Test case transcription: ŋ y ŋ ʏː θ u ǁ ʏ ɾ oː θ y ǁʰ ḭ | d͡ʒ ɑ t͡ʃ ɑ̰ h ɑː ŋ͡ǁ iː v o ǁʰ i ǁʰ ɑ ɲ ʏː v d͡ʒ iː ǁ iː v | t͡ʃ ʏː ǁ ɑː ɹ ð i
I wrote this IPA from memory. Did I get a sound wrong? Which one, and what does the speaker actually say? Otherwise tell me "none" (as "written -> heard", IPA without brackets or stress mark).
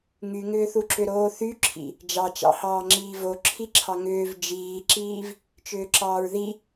ɲ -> ŋ